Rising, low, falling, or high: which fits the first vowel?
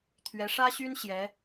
rising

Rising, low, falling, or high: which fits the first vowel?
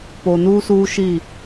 low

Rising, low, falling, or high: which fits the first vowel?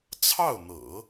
falling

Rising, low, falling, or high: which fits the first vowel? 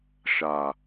low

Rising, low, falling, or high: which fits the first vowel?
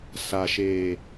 low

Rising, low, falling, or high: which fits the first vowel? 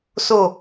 falling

